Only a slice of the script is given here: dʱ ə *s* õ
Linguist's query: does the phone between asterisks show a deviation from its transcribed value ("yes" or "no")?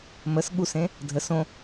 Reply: no